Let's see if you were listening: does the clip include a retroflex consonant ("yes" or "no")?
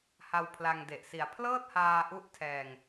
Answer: no